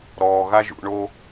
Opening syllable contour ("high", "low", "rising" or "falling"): low